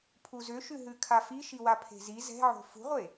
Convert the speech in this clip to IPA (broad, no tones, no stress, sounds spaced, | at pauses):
pʰ u z ʏ ʃ ʉ ɦ ʉ kʰ a f i ʃ i w a pʰ e̤ z i z ɛ̤ ʕ o̤ f ṳ ʁʷ e